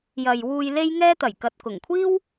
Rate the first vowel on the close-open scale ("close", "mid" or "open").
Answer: open